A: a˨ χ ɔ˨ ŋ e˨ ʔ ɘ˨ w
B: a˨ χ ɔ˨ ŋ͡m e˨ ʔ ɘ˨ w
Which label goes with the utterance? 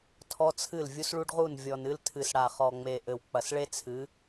B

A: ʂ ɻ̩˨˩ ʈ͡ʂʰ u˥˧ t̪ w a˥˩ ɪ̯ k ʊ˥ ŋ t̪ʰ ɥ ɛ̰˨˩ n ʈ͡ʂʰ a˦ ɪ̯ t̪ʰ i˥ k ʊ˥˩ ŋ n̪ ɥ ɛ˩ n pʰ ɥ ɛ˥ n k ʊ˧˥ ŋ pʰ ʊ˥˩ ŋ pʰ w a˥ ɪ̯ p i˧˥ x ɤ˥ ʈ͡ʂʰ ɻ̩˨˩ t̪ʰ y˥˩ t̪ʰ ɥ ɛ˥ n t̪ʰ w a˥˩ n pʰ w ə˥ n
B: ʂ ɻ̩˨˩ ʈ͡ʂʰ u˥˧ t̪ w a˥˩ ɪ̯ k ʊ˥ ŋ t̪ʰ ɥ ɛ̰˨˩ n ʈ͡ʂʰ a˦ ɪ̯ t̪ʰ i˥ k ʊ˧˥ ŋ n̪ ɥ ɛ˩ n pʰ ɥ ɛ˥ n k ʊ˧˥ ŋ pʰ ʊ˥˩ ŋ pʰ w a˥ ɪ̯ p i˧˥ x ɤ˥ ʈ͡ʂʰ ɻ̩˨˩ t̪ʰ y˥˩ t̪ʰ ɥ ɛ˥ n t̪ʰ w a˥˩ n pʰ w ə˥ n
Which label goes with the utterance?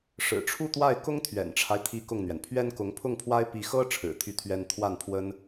A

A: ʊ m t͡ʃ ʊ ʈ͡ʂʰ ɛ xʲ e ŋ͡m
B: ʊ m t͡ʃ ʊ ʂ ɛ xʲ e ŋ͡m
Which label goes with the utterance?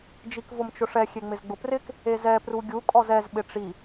B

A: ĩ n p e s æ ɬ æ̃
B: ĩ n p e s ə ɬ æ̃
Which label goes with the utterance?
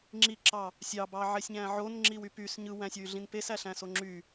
A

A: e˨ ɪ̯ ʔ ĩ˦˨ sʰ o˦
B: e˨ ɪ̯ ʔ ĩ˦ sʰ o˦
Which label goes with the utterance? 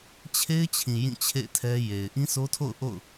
B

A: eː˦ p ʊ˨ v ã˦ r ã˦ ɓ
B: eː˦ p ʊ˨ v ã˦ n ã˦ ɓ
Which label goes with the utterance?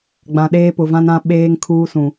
B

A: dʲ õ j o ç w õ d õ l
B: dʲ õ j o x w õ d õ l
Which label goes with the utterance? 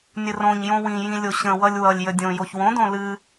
A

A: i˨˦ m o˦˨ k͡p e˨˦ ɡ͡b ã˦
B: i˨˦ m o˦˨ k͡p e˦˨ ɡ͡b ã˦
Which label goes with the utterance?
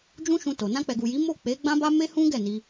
A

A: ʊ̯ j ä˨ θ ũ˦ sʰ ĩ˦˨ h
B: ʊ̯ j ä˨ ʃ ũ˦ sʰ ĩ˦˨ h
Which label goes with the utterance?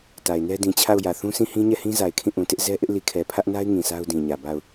A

